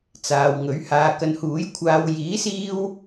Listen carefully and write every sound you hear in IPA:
t͡s aː˨ w ŋ ɵ˨˥ ɥ h aː˧ k ɐ˧ n h uː˨˥ j kʷʰ aː˧ w j iː˨˥ s iː˧ w

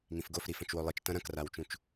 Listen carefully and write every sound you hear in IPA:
ŋ ĩ f ɡ o f ɾ i f ɐ̃ t͡ʃ w o lˠ ɨ t͡ʃ t ɐ̃ ɾ ɐ̃ k r a w t͡ʃ ũ t͡ʃ

